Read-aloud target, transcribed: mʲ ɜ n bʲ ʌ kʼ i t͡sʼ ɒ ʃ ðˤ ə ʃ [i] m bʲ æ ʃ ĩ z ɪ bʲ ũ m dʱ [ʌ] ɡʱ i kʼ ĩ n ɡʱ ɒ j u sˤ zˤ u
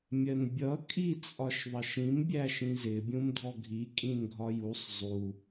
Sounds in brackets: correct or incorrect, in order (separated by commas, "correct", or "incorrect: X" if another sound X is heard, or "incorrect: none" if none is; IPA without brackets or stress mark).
incorrect: ĩ, incorrect: ɔ